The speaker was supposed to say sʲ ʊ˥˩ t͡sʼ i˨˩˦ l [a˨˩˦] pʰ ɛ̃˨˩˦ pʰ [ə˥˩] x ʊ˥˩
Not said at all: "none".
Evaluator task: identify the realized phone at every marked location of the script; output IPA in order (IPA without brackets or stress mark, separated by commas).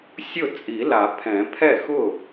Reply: a˨˩˦, ɛ˥˩